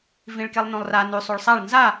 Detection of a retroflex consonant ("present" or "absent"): present